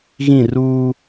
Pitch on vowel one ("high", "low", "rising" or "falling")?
falling